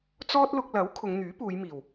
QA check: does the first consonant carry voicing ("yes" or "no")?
no